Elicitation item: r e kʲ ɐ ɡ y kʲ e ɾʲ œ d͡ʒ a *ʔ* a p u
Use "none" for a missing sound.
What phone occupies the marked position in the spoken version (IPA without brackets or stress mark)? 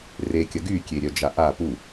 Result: ʔ